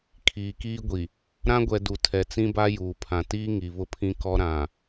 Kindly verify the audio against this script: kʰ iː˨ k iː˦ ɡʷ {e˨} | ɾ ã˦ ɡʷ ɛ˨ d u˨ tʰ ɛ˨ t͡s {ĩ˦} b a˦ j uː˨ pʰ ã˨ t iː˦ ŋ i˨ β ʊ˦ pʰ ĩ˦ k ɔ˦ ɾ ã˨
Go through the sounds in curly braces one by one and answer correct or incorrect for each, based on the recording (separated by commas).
incorrect, correct